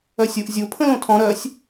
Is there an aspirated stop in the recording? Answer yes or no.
yes